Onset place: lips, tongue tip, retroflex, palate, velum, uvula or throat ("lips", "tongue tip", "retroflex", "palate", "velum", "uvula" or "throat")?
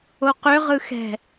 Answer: uvula